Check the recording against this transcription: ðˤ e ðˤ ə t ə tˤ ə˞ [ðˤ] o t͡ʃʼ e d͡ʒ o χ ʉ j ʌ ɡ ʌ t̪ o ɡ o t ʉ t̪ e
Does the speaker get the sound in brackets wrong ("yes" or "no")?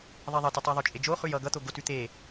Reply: no